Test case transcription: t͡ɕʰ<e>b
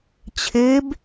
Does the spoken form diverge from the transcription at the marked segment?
no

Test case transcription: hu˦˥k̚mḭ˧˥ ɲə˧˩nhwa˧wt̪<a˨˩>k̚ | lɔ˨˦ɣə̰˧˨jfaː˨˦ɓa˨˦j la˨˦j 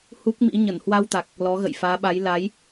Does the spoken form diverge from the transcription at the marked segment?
no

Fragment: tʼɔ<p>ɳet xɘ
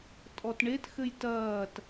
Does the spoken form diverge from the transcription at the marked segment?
yes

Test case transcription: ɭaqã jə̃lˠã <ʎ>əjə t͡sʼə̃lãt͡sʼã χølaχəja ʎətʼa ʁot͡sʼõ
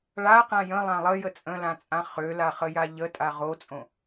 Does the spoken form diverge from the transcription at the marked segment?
yes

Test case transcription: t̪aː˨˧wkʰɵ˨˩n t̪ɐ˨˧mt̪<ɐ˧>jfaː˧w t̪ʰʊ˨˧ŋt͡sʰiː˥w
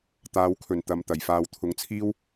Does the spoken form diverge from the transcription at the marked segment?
yes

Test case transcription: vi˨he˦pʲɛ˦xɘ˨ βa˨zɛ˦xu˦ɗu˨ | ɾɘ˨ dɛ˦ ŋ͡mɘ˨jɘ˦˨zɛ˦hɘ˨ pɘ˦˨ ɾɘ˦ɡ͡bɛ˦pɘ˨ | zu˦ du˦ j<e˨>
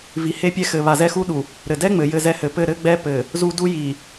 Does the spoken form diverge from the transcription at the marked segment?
yes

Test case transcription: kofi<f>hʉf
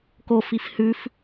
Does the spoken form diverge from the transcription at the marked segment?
no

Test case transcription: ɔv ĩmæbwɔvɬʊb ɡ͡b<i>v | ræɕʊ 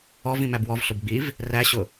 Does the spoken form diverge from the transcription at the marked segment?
no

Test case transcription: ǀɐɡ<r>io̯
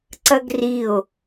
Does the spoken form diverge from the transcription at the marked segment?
no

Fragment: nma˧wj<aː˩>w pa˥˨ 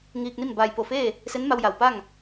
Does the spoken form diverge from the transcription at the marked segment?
yes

